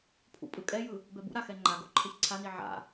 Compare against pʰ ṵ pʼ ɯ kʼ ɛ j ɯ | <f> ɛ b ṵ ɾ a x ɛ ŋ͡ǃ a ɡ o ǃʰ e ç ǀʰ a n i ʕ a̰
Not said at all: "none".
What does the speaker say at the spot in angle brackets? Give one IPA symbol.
b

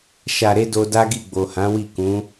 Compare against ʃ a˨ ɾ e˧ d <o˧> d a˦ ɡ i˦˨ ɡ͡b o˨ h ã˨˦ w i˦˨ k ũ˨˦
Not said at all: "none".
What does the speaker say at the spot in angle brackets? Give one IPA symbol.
o˧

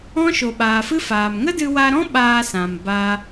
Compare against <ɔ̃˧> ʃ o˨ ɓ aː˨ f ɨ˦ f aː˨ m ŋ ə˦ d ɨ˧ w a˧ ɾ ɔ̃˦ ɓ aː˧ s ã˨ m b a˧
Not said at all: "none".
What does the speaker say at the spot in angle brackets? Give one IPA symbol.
ɔ̃˦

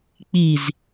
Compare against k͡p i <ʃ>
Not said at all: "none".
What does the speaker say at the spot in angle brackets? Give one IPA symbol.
z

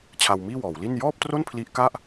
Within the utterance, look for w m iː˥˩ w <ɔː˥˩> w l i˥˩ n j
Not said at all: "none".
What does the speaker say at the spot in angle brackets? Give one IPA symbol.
ɔː˩˦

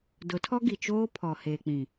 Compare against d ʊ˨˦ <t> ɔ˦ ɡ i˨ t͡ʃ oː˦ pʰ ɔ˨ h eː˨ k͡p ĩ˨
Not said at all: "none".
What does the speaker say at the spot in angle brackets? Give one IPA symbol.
tʰ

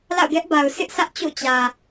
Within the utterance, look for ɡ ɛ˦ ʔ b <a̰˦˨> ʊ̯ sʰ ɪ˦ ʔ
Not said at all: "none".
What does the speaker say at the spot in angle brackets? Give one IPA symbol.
a˨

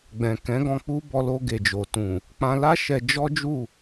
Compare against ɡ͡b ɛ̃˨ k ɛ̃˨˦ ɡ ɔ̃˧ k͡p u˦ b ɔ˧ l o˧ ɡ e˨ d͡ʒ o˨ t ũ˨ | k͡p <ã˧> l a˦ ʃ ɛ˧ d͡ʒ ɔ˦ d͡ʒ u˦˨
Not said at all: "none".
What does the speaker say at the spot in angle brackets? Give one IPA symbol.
ã˧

